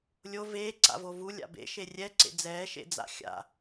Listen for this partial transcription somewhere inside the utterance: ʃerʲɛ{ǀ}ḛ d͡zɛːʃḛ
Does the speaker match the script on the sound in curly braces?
yes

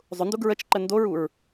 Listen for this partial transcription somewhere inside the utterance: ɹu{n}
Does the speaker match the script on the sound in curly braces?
no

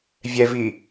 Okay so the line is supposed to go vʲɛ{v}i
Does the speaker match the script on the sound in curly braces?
yes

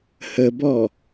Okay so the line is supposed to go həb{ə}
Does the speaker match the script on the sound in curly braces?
no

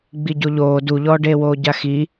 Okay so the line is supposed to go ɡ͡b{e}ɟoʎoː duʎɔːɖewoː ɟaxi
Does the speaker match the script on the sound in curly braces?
no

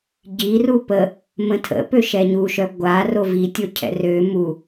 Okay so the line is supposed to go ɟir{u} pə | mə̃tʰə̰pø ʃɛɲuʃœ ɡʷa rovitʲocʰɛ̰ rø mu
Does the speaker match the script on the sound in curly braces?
yes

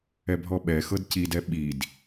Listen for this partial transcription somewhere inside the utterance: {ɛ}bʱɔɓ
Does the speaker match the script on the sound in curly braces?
yes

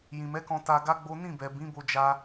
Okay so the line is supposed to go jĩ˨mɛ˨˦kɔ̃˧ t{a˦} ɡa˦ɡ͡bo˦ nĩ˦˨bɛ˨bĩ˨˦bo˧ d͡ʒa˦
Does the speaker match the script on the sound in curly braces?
no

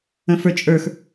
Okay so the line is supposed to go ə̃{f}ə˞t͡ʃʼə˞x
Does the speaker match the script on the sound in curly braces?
yes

